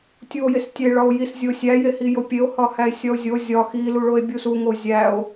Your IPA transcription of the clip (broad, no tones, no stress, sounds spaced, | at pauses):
tʲ u o̯ j e s tʲ e ɭ ɒ o̯ j i s zʲ o sʲ æ j e h i j o pʲ e o̯ h ɒ h æ e̯ sʲ ɒ o̯ zʲ o zʲ ɒ x i l u ɭ o e̯ bʲ u s u ŋ o zʲ æ o̯